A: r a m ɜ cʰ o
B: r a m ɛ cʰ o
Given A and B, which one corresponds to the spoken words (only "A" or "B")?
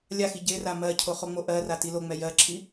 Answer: A